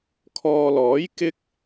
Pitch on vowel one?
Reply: low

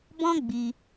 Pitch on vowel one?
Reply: high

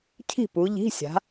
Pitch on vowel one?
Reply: falling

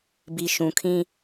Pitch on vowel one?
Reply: low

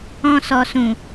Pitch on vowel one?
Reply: low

